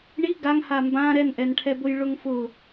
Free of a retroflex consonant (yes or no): no